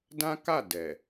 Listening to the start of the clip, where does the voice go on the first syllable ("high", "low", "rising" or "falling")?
high